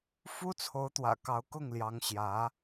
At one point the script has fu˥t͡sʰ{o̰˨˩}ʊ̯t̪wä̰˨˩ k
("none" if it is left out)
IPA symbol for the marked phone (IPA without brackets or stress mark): o˧˥